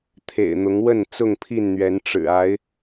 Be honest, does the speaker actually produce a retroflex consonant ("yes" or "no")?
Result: yes